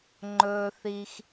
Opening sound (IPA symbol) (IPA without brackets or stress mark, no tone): ŋ͡ǃ